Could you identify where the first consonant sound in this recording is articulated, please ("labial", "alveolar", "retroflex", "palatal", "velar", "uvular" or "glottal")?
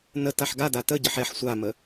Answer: alveolar